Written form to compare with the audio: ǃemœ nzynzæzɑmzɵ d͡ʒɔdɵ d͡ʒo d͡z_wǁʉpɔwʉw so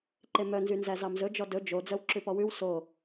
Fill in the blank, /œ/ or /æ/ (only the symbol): œ